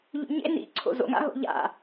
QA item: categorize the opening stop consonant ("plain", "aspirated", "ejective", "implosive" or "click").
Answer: click